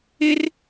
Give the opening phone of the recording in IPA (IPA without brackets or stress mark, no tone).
ɪ